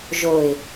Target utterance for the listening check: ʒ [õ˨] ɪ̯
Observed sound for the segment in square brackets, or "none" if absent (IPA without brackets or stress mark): o˨